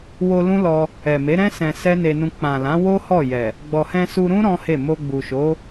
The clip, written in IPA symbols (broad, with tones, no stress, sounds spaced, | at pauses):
w o˧ l ũ˦ l ɔ˧ | ɛ˨ m e˨˦ ɾ ɛ̃˦ s ɛ̃˧ s ɛ˦ n e˧ n ũ˧ k͡p ã˨ l ã˨˦ w o˦ h ɔ˦˨ j ɛ˨ | ɡ͡b ɔ˨ h ɛ̃˧ s u˧ ɾ ũ˦ ɾ ɔ̃˦ h e˦˨ m o˧ ɡ͡b u˨ ʃ o˨˦